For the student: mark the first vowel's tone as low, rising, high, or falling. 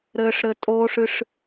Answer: low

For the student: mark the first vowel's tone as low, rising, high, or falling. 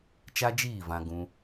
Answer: high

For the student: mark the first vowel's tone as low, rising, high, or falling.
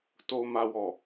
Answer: low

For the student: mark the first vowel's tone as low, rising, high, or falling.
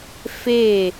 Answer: falling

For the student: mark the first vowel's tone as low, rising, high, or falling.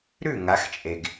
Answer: falling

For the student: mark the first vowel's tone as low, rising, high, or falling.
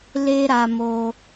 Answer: high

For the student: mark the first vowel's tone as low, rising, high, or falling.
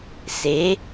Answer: rising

